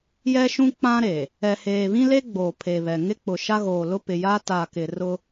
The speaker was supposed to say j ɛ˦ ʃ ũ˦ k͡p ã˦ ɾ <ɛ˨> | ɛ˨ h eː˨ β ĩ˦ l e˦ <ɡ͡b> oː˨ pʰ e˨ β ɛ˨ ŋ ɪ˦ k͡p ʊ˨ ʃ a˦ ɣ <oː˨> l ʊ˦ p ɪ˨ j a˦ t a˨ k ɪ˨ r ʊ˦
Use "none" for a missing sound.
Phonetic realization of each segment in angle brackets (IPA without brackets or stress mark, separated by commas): e˨, ɡ͡b, oː˨